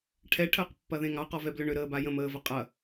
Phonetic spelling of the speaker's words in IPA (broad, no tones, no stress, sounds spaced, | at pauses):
ʈʰ ɛ ʈʰ əː q pː ɐ ð ẽ ŋ ɑ q ɔ v ɛ b l ʏ ɳ ʏ ɾ əː b a j ə̃ m əː v ə qʼ ɐ